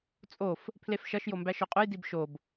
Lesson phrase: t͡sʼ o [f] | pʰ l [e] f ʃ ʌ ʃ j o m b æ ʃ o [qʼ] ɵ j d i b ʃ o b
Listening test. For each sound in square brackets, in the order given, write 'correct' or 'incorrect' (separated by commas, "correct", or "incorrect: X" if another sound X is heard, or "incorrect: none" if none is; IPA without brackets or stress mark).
correct, correct, correct